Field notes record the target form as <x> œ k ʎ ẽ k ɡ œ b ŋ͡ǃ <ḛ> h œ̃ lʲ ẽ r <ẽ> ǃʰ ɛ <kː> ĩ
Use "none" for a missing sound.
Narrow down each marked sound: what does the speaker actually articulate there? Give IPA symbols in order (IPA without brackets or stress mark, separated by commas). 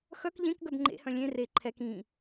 x, ḛ, e, k